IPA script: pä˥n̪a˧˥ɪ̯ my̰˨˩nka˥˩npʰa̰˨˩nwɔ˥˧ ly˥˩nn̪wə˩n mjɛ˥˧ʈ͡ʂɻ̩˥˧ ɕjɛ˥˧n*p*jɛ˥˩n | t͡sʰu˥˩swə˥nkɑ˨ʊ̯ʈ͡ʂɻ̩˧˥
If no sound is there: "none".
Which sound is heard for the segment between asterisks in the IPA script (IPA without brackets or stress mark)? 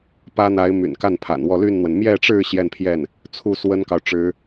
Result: pʰ